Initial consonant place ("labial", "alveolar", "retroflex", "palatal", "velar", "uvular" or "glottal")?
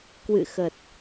velar